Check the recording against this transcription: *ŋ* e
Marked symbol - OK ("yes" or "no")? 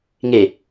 yes